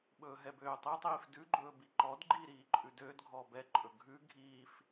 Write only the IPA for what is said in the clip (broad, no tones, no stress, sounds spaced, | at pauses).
ɓ ɵː ɦ ɛ b øː tˤ i tˤ iː f d ʉ ɡ͡ǃ ɵː b i ǃ ɔ d ɡ͡ǃ iː ɾ iː ǃʼ ʉ d øː d ɡʱ ɔː b ɛ ǃʼ ɵ ɡʱ ʉ ɡʱ iː f